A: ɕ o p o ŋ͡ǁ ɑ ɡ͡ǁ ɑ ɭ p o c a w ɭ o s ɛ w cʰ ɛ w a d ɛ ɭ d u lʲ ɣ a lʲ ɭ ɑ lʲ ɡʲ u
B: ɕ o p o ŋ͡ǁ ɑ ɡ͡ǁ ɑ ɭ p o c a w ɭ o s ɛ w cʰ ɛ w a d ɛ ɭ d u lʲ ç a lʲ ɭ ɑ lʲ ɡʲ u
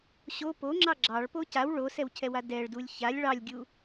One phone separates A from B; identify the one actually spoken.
B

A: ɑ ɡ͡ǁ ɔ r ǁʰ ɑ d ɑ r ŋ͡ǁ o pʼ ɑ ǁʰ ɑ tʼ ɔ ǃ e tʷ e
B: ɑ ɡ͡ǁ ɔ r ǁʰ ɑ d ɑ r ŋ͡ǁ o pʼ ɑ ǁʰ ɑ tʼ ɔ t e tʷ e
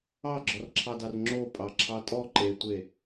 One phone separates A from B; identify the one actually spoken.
A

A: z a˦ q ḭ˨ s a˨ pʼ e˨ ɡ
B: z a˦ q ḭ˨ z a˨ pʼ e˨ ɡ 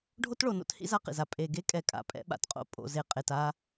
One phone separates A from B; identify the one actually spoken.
B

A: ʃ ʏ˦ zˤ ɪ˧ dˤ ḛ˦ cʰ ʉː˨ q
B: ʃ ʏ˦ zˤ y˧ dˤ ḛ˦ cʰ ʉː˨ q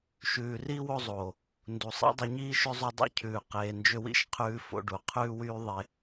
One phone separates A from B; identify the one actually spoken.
B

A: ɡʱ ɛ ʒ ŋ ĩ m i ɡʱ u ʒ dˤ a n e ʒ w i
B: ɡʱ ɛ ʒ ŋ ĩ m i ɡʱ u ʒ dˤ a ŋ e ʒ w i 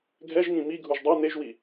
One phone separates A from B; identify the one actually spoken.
A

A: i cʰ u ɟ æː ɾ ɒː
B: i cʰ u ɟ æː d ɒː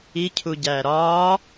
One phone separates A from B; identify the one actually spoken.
A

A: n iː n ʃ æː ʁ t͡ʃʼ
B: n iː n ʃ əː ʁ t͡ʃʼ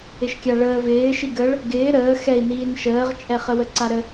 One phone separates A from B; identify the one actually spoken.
B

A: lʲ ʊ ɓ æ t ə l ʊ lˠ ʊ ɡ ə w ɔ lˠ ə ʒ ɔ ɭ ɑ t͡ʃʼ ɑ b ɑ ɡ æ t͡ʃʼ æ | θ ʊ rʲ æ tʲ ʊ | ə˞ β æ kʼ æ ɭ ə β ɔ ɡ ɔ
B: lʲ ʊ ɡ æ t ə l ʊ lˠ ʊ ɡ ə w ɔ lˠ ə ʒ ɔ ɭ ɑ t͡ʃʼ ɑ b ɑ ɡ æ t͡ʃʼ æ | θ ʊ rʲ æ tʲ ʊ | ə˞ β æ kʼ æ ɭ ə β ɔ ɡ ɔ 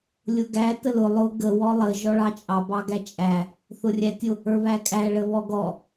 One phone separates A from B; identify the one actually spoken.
B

